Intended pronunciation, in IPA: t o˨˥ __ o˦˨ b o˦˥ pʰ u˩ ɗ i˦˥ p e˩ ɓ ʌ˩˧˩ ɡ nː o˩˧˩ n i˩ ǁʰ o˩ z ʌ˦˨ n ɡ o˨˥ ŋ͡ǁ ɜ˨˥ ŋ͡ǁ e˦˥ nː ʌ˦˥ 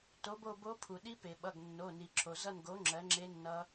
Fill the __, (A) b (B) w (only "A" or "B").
A